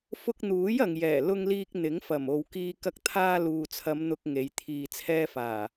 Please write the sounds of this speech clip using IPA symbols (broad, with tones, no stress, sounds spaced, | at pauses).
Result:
f ʊ˧ k̚ n̪ uː˨˥ j ɐ˨ ŋ j ɛː˨˩ l ʊ˧ ŋ l iː˧ k̚ n̪ ɪ˨˥ ŋ f ɐ˨˩ m o˨ w k iː˧ k ɐ˧ k̚ t̪ʰ aː˧ l uː˨ t͡sʰ ɐ˨˧ m n̪ ʊ˧ k̚ ŋ e˨˧ j t̪ʰ iː˨ t͡sʰ ɛː˧ f aː˨˩